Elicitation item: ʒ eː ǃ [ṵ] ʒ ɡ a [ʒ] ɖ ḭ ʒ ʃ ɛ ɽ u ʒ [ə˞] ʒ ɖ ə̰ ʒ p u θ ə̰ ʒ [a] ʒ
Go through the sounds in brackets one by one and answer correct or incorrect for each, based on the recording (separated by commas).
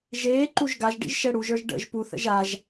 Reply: incorrect, correct, correct, correct